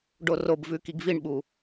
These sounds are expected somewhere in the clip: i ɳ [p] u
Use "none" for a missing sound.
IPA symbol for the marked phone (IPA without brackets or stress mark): ɓ